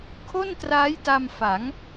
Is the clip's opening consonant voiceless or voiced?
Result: voiceless